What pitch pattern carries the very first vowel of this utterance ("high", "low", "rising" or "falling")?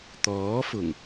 rising